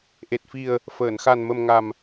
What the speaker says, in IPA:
ʔ e˨˩ t̚ f i˨˩ ə̯ | f əː˨˩˨ n x a˨˩ n m ə˨˩ m ŋ a˨˩ m

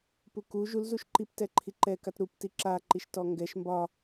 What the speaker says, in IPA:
p u k u ʒ u l z u ʃ ǃ i p t ɛ ǃʰ i ǃ ɛ k a t ɾ u p t i ǁ a ǃ i ʃ t ɔ ŋ ɡ ɛ ʃ m b ɒ

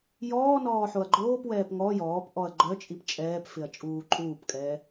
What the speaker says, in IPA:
j ɔː n ɔː ħ o ɐ̯ ɡ͡ǃ oː p w ɛː p ŋ ɔ j ɔː p ʔ ɔ ɐ̯ ɡ͡ǃ œ t͡ʃʼ i p t͡ʃʼ ɛː p f ɪ ɐ̯ t͡ʃʼ uː ǃʼ uː p kʼ ɛː

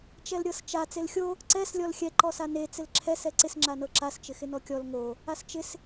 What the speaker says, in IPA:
t͡ʃ ɛ l ɾʲ ɤ s t͡ʃ a t͡s e l xʲ o | ǀ ɛ s lʲ ɔ l xʲ ɛ ǃ ɔ s a n e t͡s ɪ l ǁʰ ɛ s ɛ ǀ ɪ s ŋ͡ǁ a n ɤ ǁ a s t͡ʃ ɪ x ɪ n ɔ kʲ ɔ l ŋ o | a s t͡ʃ ɪ s

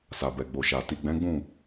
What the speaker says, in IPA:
s a˨ b ɛ˨ ɡ͡b o˨ ʃ a˨ t i˨ ɡ͡b ɛ̃˨˦ ɡ͡b ũ˦˨

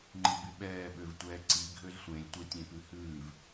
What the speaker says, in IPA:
ŋ͡ǃ i b y ɓ ɛː ɓ ø v tʷ ɛː ǀ i ɡʱ ø z sʷ ẽ lʲ tʷ e tʲ ẽ p ʉ h ʉː v

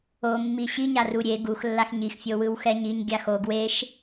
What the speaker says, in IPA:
o mː i ɕ i ɲ a r u ɾʲ e ɡ u x lː a x ɲ i x fʲ o w ɯ w x ɛ ɲ i ɲ ɡʲ a x o ɡ w e ʃ

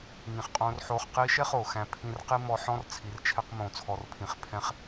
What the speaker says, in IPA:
ŋ ĩ˨ χ qʼ õː˧ r ħ oː˧ χ q iː˧ ʃ ɛ˦ χ oː˨ x æ̃˧ pʰ ĩ˧ r q i˧ m ɔ˧ ħ ɔ̃˦ r t͡sʰ i˨˦ r t͡ʃʰ ɛ˦ q m õː˧ t͡sʰ ɔ˧ r pʰ ĩ˧ χ pʰ ɛ̃˦ χ

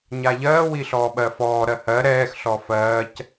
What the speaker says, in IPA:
ɲ a ʎ ɜː w i ɬ ɔː ɓ ɜ f ɔː ɾ ɜ h ɜ ɾ ɛː x ɬ ɔ f ɜː c

